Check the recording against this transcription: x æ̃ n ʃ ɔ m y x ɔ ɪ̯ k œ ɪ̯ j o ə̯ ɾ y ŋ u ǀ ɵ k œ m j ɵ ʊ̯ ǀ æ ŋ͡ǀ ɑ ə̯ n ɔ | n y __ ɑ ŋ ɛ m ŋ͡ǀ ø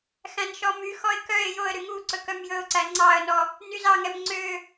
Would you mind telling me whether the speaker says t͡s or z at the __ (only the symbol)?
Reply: z